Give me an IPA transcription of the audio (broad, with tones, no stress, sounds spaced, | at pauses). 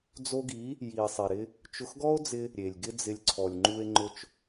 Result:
d͡z o˧ ɡ i˨˦ | j i˨ e̯ sˤ ɛ˨ ɾ ɪ˧ | t͡ʃ ʊ˧ x ɡ ɔ˦ o̯ d͡z ɪ˧ | ɾʲ e˨ lʲ ɡ ɪ˦ d͡z ɪ˧ lʲ ǀʰ ɔ˨ lʲ ŋ͡ǃ u˧ e̯ ŋ͡ǃ ʊ˧ t͡ʃ